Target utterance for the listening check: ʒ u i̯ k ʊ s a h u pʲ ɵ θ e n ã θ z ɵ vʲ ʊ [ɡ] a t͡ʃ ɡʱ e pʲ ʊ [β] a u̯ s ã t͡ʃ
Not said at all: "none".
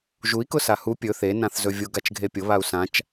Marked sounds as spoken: ɡ, β

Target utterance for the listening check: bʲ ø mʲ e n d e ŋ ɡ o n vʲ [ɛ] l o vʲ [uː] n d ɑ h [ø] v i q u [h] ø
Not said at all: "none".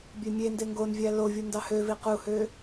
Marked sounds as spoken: æ, u, ø, h

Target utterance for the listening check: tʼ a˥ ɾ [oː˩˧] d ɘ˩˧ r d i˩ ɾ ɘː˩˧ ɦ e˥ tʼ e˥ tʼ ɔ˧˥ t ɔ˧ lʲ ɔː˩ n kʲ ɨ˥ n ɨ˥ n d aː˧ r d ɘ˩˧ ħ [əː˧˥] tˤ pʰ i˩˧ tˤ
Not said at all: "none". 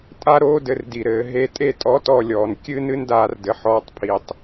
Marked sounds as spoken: oː˥, ɔː˧˥

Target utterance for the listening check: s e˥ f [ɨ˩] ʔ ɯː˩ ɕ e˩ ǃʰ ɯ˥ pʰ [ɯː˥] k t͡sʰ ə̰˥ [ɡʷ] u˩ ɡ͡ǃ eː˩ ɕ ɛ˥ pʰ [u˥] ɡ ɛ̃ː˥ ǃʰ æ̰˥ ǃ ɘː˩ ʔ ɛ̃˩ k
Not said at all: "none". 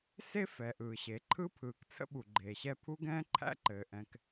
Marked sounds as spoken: ɛ˩, ɯː˩, ɓ, u˥

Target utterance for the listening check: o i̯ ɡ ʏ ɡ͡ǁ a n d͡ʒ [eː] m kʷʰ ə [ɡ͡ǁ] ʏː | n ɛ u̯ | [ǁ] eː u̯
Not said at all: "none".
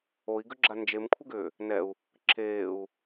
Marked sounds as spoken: e, ɡ, ǁ

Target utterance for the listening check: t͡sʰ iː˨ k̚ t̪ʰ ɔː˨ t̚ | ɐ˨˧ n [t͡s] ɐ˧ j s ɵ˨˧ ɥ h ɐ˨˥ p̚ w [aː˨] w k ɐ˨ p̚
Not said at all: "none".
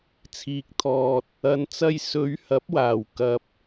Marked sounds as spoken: t͡s, aː˨˩

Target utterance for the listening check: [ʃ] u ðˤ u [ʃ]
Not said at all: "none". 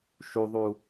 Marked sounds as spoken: ʃ, none

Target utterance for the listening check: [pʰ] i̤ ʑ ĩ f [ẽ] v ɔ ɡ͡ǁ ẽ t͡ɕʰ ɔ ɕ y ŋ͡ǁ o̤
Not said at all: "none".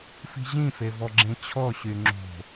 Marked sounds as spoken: f, e

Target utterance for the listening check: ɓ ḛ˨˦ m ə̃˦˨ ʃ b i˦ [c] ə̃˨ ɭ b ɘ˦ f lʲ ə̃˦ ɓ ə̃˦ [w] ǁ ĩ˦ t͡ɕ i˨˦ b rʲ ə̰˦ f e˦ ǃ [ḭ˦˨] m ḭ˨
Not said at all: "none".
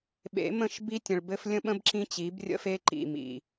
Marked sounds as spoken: tʲ, b, ḭ˦˨

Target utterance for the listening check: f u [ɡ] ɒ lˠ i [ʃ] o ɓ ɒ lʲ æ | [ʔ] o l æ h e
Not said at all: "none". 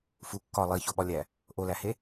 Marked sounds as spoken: kː, ç, ʔ

